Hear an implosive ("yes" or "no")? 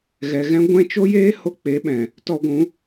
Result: yes